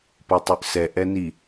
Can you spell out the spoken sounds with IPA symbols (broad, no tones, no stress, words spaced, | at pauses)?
potˤʉʔsɛ ʔɛni